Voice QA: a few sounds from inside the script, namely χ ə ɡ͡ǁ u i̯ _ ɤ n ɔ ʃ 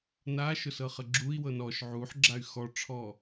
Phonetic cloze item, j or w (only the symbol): w